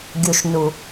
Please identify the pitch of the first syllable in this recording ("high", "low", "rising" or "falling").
low